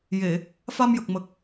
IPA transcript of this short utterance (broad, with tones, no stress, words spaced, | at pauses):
je˨˩˨ | fa˧mjə˨˩k̚mə˨˩k̚